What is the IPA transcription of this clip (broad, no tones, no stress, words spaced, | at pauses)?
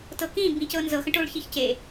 tɤkĩ bĩcɤnzɤxə̃ ʈoɭçiçce